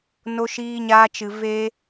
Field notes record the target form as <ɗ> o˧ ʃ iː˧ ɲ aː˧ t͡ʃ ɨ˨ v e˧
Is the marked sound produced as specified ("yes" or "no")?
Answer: no